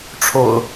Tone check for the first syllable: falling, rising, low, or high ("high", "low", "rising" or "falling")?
low